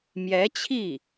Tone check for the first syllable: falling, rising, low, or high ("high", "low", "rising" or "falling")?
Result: rising